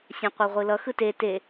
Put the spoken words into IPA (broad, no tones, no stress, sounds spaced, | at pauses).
sʲ ã qʷ e ʁʷ ɯ l ʌ x ɯ t e t e